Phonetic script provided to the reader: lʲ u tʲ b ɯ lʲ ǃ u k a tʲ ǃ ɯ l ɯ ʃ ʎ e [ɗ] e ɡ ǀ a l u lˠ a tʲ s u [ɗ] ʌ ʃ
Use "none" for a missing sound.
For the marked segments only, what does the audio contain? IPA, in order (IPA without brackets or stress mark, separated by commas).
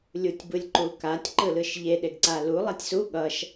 ɗ, ɠ